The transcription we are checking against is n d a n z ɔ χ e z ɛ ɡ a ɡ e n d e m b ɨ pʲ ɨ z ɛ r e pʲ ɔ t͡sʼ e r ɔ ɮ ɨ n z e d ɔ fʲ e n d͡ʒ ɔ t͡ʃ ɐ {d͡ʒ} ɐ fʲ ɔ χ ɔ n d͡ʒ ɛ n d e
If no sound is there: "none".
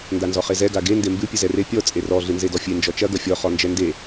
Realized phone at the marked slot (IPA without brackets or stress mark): ɡ